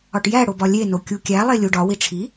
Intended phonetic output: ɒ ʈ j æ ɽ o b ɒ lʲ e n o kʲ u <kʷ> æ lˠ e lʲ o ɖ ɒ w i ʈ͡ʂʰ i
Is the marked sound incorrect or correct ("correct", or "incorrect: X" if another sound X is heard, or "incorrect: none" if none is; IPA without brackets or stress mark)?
incorrect: kʲ